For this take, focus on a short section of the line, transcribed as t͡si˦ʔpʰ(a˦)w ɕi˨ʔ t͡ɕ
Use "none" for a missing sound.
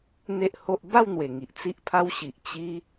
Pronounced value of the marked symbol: a˦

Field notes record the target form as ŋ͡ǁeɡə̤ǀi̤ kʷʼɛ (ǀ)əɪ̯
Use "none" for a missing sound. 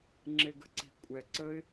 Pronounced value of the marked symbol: ǀ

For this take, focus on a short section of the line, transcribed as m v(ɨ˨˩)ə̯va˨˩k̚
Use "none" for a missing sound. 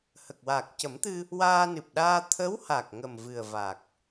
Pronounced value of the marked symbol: ɨ˨˩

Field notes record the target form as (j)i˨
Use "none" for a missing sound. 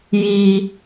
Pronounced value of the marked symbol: j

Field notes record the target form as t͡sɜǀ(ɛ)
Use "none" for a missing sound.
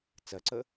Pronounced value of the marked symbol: ə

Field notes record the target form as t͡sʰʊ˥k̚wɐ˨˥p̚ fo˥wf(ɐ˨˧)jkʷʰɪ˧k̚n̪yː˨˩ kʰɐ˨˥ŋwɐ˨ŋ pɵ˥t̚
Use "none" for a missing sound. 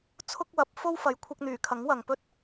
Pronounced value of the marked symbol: ɐ˨˧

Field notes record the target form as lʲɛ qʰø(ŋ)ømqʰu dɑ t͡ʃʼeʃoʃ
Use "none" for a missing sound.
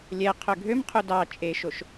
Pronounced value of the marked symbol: ɡʱ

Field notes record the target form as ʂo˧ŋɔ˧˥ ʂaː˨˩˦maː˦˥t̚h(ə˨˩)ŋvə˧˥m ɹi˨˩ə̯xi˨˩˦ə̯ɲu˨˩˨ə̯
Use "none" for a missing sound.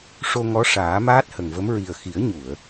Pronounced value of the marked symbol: ə˨˩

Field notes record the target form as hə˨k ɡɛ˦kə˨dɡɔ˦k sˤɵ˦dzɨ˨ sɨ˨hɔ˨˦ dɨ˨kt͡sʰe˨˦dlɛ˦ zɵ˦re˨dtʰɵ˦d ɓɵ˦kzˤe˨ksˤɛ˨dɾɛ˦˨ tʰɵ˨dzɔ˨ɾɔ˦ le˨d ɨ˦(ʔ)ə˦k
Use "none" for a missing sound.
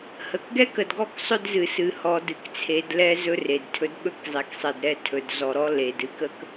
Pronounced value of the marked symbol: k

